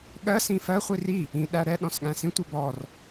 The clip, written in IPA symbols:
ɠɜ sĩfɜ χʷiri | ĩ ɗæɾɛ ɗɔ̃sɠæ̃sĩ tʷɛbɔr

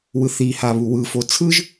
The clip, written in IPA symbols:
wɯθiha βuwɯ fot͡sʰɯʒ

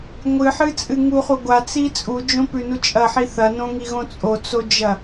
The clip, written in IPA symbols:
ŋʷɨħɨt͡sʼɨ ŋuχu ɡʷat͡si t͡sʼud͡ʒõpʉnu t͡ʃʼɐħi θɐnõŋiɣõ t͡sʼot͡sod͡ʒɐ

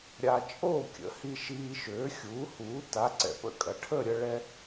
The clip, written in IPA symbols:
ɾʲa˧ t͡ʃʼoː˥˨kʲə̰˩˥hi˧ ʃiː˧ʃøː˩˥xʲuː˩˥huː˩˥ ta˩˥ ǀɛ̰˨˩pə̰˥˨kʼɐ˨˩ ʈʰəː˥˨ɾʲə˧ ɭɛ˧

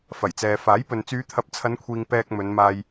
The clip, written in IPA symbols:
fɐ˨˩jt͡sɛː˨ faː˨˥jpɵ˨n t͡syː˨˧t̪ʰɐ˨˥p̚t͡sʰɐ˨˧nkʷʰiː˨ŋ pɛː˧k̚mɵ˨˧nmaː˧j

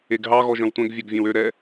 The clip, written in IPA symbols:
eɡɦɑ ɣɔʒœ̃wtʷɛ̃ɡ vʲɛɡvʲɛ̃wø ɾɛ

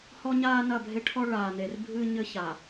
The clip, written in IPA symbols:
hɔ˦ɲaː˦ nɐ˦˨bʱe˦ʈʰɔ˦ ɭaː˨ne˨r bʱɨː˦ɲɘ˦ça˨

